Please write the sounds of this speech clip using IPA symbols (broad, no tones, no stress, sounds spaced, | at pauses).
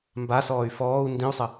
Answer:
m b a s ɔː y̯ f ɔː u̯ n d ĩ u̯ sˤ ə